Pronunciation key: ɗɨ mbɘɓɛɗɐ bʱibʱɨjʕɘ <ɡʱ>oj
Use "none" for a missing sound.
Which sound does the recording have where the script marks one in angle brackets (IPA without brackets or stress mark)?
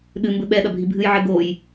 ɡ